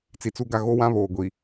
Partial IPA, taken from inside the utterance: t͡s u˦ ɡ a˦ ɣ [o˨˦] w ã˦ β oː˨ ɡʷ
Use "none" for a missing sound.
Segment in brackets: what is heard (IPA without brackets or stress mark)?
o˦